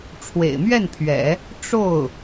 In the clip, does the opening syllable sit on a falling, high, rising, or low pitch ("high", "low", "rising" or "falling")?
low